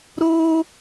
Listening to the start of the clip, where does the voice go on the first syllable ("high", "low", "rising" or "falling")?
high